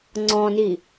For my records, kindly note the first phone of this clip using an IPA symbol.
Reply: ŋ͡ǀ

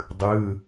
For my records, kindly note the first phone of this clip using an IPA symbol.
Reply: dˤ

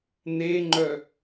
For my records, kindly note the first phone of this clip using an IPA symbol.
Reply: n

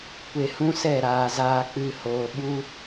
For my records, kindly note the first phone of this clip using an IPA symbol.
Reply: kʷ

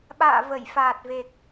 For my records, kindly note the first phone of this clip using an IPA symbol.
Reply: ɓ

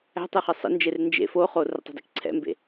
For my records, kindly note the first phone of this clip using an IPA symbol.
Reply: æ̤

